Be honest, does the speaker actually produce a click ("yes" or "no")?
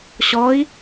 no